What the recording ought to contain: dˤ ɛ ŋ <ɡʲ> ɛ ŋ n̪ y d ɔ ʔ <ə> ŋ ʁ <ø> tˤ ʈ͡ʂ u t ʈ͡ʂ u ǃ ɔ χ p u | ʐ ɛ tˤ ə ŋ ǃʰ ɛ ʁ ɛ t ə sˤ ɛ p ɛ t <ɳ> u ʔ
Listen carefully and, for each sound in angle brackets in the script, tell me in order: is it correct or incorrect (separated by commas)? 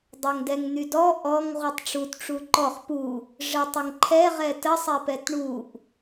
incorrect, incorrect, incorrect, correct